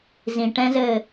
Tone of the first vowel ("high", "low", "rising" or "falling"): low